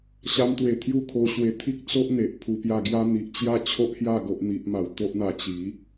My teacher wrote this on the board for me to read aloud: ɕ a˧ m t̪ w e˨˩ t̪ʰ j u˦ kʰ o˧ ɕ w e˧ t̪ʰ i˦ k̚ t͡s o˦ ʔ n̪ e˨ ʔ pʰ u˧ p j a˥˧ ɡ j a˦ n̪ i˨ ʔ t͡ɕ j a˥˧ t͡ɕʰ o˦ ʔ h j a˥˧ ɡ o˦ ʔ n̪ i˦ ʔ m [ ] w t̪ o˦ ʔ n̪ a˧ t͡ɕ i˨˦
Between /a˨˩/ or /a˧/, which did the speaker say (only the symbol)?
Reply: a˧